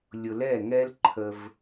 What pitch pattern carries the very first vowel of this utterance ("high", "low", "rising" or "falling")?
low